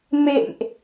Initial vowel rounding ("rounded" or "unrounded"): unrounded